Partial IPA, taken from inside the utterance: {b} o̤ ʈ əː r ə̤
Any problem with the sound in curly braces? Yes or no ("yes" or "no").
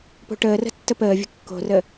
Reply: yes